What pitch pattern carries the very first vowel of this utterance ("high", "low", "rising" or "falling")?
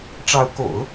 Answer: rising